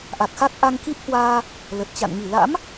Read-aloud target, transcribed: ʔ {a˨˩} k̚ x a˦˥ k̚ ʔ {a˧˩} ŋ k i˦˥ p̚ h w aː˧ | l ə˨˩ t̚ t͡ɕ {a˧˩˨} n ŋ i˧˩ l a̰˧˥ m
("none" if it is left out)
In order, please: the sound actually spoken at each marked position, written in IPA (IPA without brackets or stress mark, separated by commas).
a˨˩, a˧, a̰˧˨